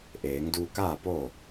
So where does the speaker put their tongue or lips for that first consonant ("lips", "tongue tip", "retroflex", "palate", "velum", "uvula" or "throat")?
throat